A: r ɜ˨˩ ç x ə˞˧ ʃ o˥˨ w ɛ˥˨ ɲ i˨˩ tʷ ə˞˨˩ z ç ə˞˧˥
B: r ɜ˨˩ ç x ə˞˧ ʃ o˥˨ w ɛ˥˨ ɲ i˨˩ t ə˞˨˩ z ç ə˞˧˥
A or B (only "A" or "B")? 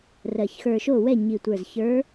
A